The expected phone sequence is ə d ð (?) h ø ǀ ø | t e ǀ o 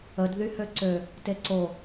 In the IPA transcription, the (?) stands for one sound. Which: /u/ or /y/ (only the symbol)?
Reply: y